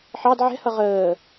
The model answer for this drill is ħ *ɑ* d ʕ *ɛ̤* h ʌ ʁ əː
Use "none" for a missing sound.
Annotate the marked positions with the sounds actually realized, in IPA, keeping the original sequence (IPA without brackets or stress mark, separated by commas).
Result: ɑ, ɛ̤